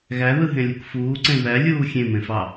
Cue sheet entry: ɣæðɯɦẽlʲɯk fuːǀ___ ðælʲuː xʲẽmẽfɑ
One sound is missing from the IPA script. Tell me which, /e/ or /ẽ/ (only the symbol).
ẽ